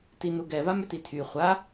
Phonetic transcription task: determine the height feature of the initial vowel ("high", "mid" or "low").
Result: high